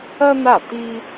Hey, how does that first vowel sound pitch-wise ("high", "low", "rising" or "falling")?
high